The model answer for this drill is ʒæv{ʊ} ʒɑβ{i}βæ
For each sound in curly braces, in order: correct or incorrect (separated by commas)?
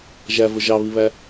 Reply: correct, correct